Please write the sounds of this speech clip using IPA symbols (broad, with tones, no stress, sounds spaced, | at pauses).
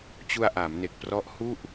t͡ɕ u˧ a̯ ʔ aː˩˦ m n e˨˩ k̚ p r ɔ˦˥ ʔ h u˥˩ ʔ